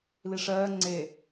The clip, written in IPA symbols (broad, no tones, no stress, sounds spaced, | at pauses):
l i ʂ ɜː ŋ͡ǀ e